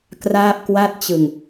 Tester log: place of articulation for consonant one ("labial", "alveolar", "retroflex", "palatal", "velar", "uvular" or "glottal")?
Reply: velar